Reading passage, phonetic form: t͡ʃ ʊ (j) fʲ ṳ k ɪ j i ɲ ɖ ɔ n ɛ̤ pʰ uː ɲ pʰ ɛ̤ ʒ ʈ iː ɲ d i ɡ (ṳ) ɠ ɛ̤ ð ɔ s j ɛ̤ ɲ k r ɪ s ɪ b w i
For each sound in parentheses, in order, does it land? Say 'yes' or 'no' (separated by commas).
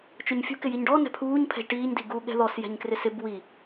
no, no